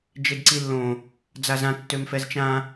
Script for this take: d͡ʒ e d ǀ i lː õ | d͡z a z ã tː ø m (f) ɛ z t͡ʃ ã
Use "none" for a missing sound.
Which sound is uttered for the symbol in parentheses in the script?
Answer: f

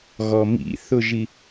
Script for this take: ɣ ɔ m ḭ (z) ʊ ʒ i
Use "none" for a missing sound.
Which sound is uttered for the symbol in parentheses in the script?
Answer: θ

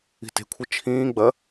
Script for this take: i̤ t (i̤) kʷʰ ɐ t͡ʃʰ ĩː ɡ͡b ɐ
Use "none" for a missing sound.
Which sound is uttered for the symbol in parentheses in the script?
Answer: e̤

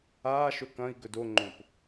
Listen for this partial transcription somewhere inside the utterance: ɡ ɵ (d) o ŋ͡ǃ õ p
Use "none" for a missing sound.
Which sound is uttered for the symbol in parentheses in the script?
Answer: d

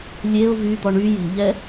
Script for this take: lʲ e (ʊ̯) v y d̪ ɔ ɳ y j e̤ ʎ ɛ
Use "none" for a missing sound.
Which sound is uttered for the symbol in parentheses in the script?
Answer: ʊ̯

